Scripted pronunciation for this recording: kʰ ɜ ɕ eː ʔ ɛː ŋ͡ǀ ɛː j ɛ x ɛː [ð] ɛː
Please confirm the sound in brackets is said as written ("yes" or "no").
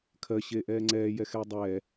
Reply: no